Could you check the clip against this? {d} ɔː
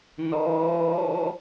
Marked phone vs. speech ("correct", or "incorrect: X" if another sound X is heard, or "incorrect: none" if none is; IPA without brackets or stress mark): incorrect: n